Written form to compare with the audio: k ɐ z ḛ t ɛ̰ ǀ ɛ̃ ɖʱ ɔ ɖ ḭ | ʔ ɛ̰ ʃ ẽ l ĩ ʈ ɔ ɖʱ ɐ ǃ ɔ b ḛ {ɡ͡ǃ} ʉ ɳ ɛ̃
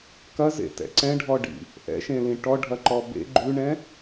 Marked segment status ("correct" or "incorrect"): correct